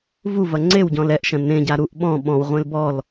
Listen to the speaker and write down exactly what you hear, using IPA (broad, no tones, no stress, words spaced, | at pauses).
vuvɐ ŋ͡ǀewɟɔ̃l ɛʔʃɐ̃ nẽɟa ɾuʔ ɓɔ̃ ɓɔ̃wʁʷẽl bɔl